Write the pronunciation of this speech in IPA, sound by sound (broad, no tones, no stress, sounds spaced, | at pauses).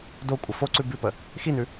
d o kʷʼ ə f o ǀ ʉ b ʉ p ə | x i n ʉ